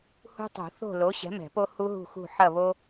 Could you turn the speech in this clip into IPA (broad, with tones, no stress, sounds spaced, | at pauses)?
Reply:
h ṳ˦ tˤ ṳ˨˩˦ θ o̤˦˨ l o˨˥ ɕ ɛ̤˨˥ m ɛ̤˨˩˦ p o˦ h u˦ ɦ ṳ˦˨ x ṳ˦˨ ħ ɐ˦˨ β o˦